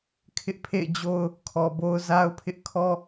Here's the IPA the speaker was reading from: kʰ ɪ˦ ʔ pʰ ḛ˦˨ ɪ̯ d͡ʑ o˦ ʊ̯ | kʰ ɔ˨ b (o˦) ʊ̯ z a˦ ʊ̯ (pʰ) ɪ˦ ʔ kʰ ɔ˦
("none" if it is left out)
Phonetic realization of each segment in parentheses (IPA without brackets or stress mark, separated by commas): o˦, pʰ